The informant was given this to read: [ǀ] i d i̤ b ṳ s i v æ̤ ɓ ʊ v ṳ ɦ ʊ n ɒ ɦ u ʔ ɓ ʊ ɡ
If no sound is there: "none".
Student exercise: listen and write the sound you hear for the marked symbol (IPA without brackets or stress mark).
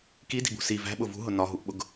k